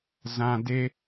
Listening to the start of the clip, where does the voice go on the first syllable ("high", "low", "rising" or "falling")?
low